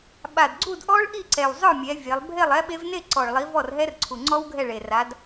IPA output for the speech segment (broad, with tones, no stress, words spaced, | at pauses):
ɓa˨˩dɡ͡ǀu˥˨dʔɔ˦˥ɭ ʔi˥˨ǀɛ˨˩w zˤœ˥˨mʲɛ˨˦ vʲe˨˦lˠ bʱe˥˨lˠɛ˦˥ɓe˦˥v ne˥˨ǀɔ˨˩ɭlˠi˨˦ vɔ˥˨rɦɛ˦˥rǀʰu˨˩ ŋ͡ǀɔ˦˥w ɡʱɛ˥˨ɭe˨˩ra˨˦d